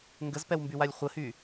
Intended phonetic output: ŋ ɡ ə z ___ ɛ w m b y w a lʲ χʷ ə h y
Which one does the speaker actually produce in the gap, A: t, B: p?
B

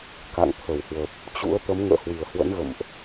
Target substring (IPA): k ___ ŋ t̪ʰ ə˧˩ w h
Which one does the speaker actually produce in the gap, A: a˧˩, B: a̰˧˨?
B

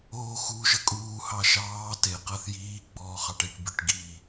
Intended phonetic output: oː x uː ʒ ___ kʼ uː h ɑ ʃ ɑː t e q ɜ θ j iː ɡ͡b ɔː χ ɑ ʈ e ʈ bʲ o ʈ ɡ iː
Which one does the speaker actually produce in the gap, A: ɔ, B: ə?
B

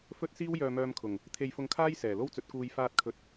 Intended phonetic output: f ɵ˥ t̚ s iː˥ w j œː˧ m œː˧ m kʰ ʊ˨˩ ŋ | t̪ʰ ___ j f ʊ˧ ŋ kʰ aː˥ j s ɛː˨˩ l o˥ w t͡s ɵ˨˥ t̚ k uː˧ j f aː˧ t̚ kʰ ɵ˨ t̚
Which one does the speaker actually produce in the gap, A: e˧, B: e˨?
A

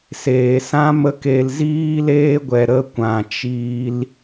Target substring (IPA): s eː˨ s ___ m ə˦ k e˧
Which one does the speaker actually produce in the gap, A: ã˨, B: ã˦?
B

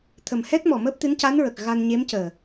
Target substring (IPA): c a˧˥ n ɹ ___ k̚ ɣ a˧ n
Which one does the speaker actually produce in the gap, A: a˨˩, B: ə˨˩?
B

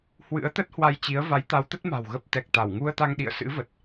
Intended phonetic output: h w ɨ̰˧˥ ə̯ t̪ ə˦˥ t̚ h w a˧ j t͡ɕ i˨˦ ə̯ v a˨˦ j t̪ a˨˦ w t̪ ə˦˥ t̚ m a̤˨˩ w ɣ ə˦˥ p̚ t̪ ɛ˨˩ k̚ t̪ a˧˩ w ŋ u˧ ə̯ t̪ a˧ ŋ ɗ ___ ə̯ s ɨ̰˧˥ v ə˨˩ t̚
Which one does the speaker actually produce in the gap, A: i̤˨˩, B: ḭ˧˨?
B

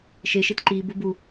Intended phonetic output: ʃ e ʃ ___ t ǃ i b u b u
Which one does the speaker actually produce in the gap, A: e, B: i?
A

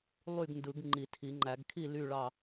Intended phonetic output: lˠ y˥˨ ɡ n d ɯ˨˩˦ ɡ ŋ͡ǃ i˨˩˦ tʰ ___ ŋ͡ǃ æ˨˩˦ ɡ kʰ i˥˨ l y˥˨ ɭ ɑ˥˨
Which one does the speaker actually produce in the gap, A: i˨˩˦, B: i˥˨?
A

